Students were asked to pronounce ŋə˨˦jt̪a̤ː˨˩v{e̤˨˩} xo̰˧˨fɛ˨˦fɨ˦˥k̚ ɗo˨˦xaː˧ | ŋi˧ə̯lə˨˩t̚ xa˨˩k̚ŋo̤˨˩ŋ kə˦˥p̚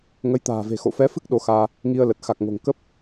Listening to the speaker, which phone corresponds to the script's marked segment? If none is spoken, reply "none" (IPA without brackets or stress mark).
e̤˨˩